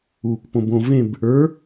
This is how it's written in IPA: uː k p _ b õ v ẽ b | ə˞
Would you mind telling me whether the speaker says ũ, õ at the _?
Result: õ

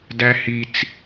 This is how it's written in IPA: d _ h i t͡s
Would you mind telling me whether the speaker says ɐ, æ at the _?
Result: æ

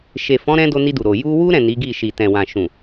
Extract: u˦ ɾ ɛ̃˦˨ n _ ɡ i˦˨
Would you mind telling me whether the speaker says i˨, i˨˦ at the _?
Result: i˨˦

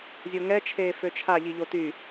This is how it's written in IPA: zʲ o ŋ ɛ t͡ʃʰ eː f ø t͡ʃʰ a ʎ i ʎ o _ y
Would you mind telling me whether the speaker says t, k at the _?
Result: t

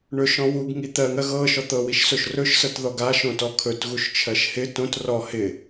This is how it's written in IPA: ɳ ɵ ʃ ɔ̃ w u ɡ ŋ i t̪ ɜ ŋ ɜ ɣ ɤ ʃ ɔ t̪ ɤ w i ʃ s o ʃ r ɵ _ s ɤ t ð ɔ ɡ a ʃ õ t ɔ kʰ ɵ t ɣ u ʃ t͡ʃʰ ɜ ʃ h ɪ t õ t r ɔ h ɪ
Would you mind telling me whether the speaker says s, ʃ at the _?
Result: ʃ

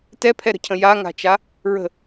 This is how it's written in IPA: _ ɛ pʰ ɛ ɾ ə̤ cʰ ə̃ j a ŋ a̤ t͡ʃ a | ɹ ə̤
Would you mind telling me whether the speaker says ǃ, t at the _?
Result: t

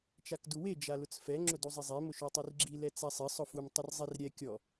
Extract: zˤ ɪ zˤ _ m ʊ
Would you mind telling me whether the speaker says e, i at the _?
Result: e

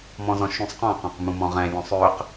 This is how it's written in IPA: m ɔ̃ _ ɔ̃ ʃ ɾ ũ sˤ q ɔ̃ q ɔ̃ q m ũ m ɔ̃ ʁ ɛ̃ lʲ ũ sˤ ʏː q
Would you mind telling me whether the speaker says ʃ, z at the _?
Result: z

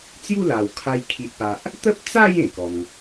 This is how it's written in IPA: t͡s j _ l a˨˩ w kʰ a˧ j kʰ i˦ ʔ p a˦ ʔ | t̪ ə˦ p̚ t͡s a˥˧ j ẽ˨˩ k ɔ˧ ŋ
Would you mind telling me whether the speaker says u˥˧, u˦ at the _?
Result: u˥˧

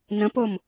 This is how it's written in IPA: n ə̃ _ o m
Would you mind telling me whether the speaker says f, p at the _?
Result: p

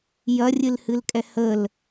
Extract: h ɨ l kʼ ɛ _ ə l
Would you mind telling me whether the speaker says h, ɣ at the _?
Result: h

